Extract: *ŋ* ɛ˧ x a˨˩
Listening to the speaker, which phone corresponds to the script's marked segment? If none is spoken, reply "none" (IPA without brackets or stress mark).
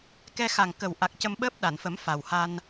k